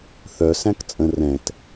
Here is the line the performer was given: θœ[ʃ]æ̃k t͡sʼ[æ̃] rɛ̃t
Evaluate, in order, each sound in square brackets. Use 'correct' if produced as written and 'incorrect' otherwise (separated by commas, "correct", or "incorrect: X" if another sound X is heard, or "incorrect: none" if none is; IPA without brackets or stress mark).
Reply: incorrect: s, incorrect: ə̃